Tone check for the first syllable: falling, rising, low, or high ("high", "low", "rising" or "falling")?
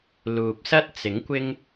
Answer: low